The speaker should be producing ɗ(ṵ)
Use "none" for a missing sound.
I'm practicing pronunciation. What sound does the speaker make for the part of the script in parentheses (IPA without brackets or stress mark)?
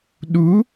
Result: u